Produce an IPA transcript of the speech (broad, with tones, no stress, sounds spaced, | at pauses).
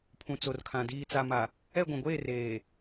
pʰ ũ˨ t͡s o˨ r kʰ ã˨ d iː˨ t͡s a˨ m a˨ | ɛ˦˨ ɡʷ ũ˨ ɡʷ eː˦˨ r eː˨